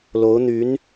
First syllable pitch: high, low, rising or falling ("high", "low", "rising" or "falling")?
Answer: rising